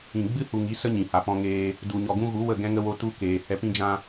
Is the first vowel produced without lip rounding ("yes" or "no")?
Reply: yes